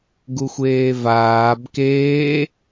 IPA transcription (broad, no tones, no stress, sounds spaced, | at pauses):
ɡ u xʷ eː v aː b k eː